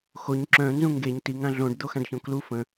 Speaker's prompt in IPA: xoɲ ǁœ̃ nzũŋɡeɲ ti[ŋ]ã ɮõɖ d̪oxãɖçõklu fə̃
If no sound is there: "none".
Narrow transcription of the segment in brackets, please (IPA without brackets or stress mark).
ŋ